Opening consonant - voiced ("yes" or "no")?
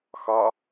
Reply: no